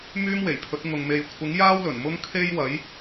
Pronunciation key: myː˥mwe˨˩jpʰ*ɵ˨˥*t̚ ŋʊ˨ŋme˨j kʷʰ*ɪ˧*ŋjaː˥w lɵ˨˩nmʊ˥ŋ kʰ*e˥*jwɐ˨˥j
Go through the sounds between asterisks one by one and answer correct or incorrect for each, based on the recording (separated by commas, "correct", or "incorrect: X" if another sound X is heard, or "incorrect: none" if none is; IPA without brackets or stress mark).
correct, incorrect: ɪ˨˥, correct